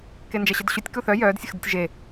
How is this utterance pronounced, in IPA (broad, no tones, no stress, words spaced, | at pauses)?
kend͡ʒɛɕədɕutʲ kuθœ jœːd sʲəxdətʲʒe